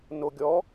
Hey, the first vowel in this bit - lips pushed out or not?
yes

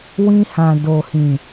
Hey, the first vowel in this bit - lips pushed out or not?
no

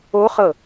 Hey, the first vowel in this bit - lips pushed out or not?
yes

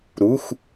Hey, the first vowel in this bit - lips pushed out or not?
yes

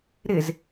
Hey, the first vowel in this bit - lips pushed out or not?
no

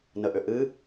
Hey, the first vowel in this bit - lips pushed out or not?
no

